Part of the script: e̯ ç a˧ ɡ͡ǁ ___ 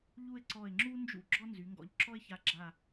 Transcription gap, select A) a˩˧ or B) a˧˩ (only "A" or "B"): B